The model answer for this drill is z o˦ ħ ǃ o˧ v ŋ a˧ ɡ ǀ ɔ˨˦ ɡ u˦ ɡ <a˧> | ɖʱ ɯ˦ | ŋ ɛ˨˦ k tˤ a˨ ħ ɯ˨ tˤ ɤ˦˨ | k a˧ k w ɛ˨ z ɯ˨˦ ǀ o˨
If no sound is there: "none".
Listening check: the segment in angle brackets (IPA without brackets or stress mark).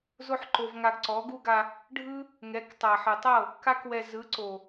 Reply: a˧